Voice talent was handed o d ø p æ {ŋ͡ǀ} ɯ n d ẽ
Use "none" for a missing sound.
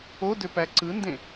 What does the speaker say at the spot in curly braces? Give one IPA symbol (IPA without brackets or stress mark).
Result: ǀ